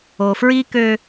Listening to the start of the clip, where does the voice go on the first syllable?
low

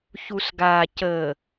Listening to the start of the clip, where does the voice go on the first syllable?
low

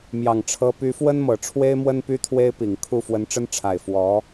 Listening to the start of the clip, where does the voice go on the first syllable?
low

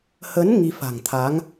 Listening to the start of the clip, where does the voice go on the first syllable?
rising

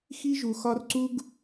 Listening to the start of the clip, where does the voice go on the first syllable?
high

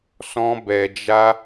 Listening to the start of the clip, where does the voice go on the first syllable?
high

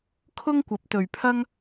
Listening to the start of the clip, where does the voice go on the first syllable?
high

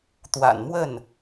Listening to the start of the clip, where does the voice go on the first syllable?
low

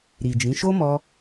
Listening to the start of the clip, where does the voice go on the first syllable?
low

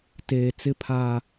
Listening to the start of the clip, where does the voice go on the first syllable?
low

